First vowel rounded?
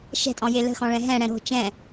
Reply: no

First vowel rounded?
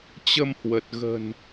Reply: no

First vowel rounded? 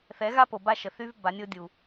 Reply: no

